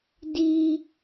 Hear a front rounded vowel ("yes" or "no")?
no